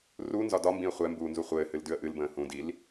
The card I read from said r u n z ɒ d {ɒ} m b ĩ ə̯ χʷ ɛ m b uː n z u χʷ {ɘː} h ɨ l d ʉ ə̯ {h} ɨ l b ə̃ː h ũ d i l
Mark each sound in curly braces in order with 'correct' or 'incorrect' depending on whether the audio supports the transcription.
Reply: correct, correct, incorrect: ʔ

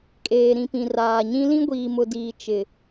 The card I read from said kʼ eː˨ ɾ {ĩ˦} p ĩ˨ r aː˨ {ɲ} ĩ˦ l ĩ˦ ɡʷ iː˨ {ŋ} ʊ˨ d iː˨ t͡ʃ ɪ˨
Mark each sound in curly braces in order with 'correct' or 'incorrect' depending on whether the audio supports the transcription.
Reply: incorrect: ĩ˨, correct, incorrect: m

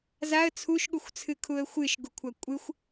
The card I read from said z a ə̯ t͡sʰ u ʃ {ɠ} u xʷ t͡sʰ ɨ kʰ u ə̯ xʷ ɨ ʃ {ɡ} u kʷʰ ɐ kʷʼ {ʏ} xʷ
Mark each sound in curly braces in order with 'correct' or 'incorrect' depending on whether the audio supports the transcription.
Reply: correct, correct, incorrect: ɨ

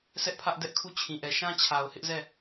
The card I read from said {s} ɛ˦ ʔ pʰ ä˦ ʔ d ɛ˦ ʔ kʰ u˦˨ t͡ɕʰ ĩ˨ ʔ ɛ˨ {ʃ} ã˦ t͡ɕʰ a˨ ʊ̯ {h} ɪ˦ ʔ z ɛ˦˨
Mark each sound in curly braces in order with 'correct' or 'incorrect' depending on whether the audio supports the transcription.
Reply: correct, correct, correct

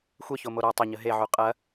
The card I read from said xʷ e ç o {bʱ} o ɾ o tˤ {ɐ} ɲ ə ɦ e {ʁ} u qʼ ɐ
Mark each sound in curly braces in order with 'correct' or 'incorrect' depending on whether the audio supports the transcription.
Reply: incorrect: m, correct, incorrect: ʕ

